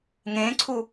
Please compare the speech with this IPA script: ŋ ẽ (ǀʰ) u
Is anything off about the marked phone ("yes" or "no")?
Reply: no